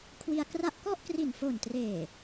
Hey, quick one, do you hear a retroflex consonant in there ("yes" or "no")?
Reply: no